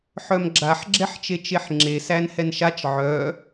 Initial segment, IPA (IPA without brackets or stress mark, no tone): ħ